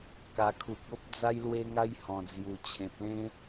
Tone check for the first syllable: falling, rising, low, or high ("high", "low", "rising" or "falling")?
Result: low